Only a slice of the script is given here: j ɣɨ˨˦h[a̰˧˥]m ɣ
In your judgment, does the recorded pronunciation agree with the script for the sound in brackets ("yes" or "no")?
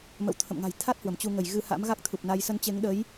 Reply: yes